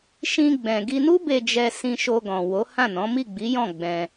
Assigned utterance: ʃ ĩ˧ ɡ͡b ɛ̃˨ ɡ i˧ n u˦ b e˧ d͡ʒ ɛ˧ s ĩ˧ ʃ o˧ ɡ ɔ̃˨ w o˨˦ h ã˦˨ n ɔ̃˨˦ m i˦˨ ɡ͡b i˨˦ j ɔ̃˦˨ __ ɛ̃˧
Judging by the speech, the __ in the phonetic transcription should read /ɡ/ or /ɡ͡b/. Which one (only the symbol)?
ɡ͡b